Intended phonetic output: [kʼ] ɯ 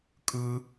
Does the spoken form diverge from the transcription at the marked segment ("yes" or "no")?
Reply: no